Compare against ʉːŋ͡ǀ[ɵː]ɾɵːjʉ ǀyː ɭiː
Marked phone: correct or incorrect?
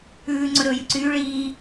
incorrect